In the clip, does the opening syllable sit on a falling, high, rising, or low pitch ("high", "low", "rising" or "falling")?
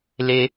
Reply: high